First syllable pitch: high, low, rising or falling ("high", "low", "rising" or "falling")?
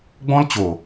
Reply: high